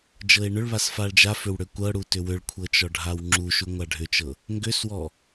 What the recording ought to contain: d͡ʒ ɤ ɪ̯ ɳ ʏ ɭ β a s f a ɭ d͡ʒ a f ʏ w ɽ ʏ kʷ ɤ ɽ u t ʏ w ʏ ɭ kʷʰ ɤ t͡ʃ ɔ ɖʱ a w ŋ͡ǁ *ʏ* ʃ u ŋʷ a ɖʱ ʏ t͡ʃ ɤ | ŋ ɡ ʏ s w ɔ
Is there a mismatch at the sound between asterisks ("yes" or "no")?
yes